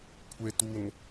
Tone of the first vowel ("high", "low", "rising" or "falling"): low